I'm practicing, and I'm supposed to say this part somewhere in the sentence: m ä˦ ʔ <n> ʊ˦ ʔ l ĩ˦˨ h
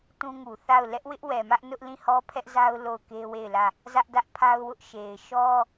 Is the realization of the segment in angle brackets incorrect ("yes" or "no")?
no